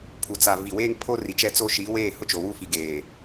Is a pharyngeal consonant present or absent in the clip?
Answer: absent